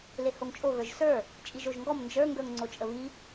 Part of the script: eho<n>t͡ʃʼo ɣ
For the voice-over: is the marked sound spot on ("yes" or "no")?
no